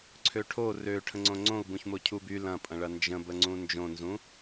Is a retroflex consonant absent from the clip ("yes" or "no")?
no